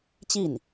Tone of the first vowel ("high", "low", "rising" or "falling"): falling